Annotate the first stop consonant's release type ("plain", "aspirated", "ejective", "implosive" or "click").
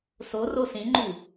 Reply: click